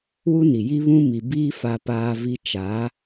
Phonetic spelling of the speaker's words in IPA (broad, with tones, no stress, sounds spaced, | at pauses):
w u˦ n i˨ j i˦ β ũ˦ m i˨ b iː˦ f a˦ p aː˦ v i˦ t͡ʃ a˨˦